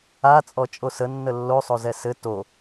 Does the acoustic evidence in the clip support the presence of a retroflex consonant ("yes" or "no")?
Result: no